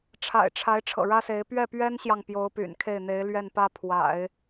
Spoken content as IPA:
ʈ͡ʂʰ a̰˨˩ ɪ̯ ʈ͡ʂʰ a˧˥ ɪ̯ ʈ͡ʂʰ ɤ̰˨˩ ɻ ä˥ s e˧˥ ɪ̯ p ɥ ɛ˥˩ p ɥ ɛ˥ n ɕ j ɑ˨ ŋ p j o˧˥ ʊ̯ p y̰˨˩ n kʰ e˥˩ ɪ̯ n̪ e˧˥ ɪ̯ l ɥ ɛ˥˩ n p ä˥ pʰ w a̰˨˩˦ ɪ̯

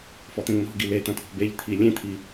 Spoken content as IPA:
f ɔ t̪ ẽ ŋ n̪ ɔ̤ ɡ i l e t̪ ɐ̃ t̪ʰ ɔ̤ b e ʎ t̪ʰ i lʲ ẽ t̪ʰ i

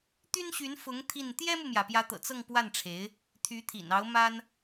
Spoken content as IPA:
t̪ y˥ n ɕ y˧˥ n f ʊ˧˥ ŋ t̪ʰ i˥˩ n t̪ j ɛ˥ m u˨ m j ä˩ p j ä˧˥ t̪ ɤ̰˨˩ t͡s ɤ˥˧ ŋ p w a˥˩ n ʈ͡ʂʰ e˧˥ ɪ̯ | t̪ʰ y˧˥ t̪ʰ ḭ˨˩ n ɑ˧˥ ʊ̯ m a˥ n

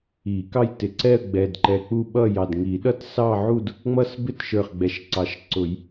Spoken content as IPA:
i˨˩˦ k ɑ˥˧ j t ɪ˨˩ ǀ ɛ˥˧ ə̯ ɡ͡b ɛ˨˩ d ǃ ɛ˨˩ k͡p u˥˧ ɓ ʌ˥˧ j ɑ˨˩ d ŋ i˨˩˦ ɗ ʌ˥˧ t s ɑ˥˧ ʕ u˥˧ d | ŋ͡m ʌ˥˧ s b ɪ˥˧ t ʃ ə˞˨˩ χ ɡ͡b ɛ˨˩ ʃ ǀ ɑ˨˩˦ ʃ ǀ ʊ˨˩˦ j

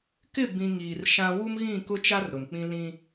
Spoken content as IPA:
k ɪ˦˨ b ĩ˨ ŋ iː˨ r ʃ ã˦ w u˦ m ɣ ĩ˦˨ k ʊ˦ t͡ʃ a˦ r ɾ ʊ˨ n k͡p ĩ˦ l ĩ˦

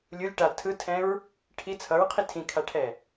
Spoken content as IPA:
lʲ u lʲ ʈ a tʰ ɯ tʰ ɛ̃ ɹ | ʈʰ i t͡sʰ ʌ ɹ qʰ i tʰ ĩ kʰ a ʈʰ ɛ

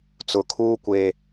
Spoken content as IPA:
t͡s ʊ˨ kʰ uː˦ kʷ eː˨

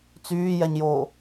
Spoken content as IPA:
t͡s yː j ɛ ɲ j oː

